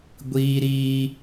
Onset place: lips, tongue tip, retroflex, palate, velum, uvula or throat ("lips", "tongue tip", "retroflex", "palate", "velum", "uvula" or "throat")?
velum